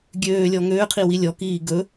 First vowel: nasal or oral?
oral